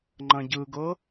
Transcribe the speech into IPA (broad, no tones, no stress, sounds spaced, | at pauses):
ŋ͡ǃ ɐ̃ ɟ ɯ ɡ ɤ